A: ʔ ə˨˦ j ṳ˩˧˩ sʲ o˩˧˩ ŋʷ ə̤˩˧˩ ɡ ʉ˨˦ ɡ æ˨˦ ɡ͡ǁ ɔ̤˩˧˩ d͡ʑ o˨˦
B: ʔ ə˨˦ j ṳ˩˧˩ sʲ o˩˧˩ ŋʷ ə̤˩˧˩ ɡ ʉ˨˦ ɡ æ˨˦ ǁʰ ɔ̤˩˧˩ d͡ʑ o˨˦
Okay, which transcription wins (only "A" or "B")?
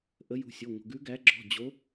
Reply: A